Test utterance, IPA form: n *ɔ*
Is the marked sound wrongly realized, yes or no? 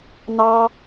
yes